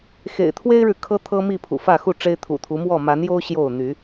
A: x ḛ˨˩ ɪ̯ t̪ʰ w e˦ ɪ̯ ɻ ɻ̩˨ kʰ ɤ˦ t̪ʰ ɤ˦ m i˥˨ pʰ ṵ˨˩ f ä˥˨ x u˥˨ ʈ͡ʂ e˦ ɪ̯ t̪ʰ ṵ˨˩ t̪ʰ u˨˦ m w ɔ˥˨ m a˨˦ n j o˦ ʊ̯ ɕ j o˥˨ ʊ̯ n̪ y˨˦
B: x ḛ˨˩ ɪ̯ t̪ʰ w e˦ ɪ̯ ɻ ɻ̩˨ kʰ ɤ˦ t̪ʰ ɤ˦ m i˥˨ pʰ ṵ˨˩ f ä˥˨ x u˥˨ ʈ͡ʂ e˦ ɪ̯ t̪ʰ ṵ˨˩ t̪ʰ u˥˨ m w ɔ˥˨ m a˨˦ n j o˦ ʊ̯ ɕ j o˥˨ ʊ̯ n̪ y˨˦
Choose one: A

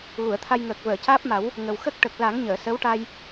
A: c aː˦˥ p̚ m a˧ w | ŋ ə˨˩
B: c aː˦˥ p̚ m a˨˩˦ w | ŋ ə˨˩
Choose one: B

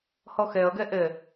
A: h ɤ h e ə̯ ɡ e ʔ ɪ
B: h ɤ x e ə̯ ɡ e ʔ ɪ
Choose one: B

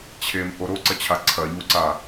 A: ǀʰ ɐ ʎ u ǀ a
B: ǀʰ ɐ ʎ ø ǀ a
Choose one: A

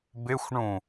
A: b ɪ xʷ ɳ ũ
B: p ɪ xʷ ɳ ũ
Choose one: A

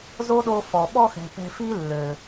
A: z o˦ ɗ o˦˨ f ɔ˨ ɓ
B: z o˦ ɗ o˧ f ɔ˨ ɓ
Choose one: B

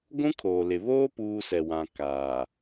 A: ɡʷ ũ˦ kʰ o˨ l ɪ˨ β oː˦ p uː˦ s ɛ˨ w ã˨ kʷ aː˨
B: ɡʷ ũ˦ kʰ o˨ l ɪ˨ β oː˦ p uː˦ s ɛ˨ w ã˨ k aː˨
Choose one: B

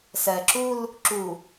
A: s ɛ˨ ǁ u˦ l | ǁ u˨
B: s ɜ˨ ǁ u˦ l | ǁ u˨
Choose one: B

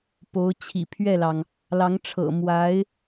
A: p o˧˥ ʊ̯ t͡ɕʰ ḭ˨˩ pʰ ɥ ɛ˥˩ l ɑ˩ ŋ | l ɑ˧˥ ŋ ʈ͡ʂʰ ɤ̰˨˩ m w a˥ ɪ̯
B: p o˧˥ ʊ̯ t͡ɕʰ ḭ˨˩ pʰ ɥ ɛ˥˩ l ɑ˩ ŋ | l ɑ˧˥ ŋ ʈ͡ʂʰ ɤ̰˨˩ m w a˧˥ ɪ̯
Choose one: B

